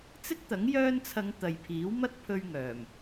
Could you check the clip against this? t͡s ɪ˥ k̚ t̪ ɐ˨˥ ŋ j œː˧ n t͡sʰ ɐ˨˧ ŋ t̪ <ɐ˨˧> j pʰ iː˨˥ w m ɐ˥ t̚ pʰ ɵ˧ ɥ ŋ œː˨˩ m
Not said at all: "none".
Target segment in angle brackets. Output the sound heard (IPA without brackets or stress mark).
ɐ˨